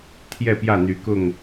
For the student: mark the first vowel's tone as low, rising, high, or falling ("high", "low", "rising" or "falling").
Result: falling